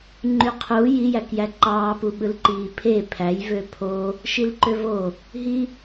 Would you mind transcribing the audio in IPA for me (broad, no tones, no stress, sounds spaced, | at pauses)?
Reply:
ŋ͡ǃ y qʰ u j i j æ k j æ ǃ ɑː p u ɓ ɯ l ǃ iː pʰ e pʰ æ j v ø pʰ o | ʃ i l ǃ ø v o | ɦ i